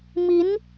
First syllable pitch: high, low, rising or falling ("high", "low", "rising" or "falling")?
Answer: rising